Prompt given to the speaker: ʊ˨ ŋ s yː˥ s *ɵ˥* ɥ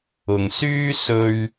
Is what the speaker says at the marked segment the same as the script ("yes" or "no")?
yes